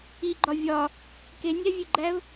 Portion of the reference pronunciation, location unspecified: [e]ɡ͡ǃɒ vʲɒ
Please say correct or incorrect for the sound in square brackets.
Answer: incorrect